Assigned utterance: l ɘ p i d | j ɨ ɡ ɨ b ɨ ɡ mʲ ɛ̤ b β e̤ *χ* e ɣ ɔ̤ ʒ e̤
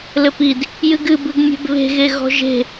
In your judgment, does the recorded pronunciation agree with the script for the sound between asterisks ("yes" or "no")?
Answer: no